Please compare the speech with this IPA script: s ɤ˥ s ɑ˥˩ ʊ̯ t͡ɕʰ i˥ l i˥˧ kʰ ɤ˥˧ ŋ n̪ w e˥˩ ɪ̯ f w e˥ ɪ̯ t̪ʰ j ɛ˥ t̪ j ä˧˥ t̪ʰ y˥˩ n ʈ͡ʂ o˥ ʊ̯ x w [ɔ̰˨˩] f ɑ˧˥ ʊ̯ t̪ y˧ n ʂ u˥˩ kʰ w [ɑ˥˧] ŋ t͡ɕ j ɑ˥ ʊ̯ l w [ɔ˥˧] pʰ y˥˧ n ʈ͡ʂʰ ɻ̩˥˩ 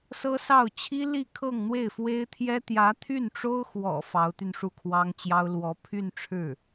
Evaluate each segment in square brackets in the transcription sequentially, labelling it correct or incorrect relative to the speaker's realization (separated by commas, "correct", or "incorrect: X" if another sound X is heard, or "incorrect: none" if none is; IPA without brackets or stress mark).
correct, incorrect: ɑ˥, incorrect: ɔ˧˥